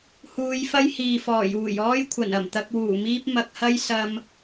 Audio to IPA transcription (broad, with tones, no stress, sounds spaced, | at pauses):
h uː˨˧ j f ɐ˥ j h iː˨ f ɔː˨˩ j uː˨˩ j ɔː˥ j kʷʰ ɐ˨˩ n ɐ˨˩ m t̪ ɐ˧ k̚ w uː˨˩ m iː˥ p̚ m ɐ˧ k̚ h ɐ˥ j s ɐ˥ m